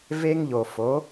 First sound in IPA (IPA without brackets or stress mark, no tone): v